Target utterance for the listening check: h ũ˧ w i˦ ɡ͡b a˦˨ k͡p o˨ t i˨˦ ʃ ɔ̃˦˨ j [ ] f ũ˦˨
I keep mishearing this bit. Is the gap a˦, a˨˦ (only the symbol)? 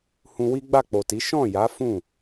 a˨˦